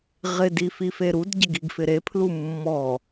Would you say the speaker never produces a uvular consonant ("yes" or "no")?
no